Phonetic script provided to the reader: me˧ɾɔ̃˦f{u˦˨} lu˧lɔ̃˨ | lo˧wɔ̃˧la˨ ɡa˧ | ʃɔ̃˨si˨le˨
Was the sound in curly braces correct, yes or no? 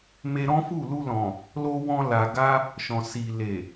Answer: yes